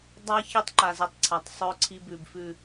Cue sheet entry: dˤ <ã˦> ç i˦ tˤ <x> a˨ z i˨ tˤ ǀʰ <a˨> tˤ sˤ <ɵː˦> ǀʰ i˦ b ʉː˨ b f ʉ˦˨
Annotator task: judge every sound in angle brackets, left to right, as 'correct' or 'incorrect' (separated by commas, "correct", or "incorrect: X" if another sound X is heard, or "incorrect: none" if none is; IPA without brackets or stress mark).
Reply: incorrect: a˦, incorrect: ǃ, correct, correct